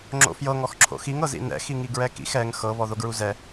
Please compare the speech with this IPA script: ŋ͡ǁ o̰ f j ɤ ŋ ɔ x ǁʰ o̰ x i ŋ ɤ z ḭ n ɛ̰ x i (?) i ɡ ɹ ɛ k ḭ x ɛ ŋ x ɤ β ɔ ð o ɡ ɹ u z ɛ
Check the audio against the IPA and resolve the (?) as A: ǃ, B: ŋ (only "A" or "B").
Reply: B